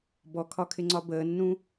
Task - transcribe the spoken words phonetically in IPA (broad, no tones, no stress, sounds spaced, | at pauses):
b ɔ kʰ ɒ kʰ ɪ ŋ͡ǀ ɒ b əː nː ũ